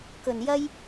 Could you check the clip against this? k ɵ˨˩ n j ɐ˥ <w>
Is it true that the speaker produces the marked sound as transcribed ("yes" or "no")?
no